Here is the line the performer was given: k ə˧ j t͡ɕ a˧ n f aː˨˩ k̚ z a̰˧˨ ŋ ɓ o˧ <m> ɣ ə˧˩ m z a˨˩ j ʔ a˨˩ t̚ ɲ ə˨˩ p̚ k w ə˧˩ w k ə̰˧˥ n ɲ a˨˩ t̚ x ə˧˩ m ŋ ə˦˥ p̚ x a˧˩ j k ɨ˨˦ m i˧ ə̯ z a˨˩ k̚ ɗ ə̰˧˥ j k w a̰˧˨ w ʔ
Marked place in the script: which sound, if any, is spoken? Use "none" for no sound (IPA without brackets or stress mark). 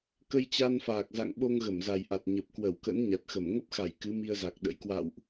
ŋ